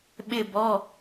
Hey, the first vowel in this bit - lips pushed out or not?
no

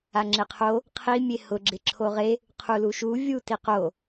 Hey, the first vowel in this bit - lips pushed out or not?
no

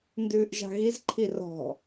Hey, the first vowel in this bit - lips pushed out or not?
yes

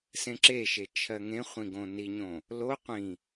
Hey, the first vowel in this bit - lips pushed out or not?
no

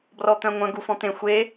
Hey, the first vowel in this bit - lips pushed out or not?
yes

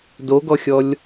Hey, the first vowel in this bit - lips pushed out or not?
yes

